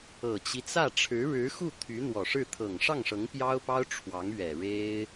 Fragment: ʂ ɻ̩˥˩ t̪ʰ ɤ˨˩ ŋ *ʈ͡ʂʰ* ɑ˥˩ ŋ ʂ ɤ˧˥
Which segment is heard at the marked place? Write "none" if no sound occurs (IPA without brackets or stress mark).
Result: ʂ